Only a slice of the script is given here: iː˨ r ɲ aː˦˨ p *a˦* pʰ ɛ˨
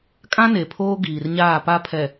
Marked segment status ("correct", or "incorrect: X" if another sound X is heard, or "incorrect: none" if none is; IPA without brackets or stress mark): correct